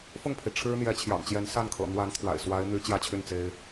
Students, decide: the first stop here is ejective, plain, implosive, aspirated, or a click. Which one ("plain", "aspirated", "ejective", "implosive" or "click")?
aspirated